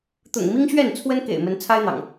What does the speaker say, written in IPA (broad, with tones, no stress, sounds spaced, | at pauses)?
t̪ ʊ̰˨˩ ŋ m i˦ ŋ ɕ ɥ ɛ˥˨ n t͡sʰ w ə˦ n k ḛ˨˩ ɪ̯ m ə˨˦ n t͡sʰ a˦ ɪ̯ n̪ ɑ̰˨˩ ŋ